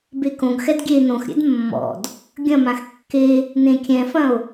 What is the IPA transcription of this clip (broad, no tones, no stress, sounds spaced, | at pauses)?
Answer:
b e k õ ɡ x ɛ d ɡʲ e n õ x ɾʲ ɛ̰ d mː ɔ̰ d | ɡʲ ɐ̃ m ã x kː e | n ẽ kʲ ɛ̃ f ɐ̃ o̯